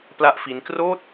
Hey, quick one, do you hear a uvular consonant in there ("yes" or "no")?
no